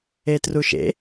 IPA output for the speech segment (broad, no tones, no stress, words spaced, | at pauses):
etruʃḛ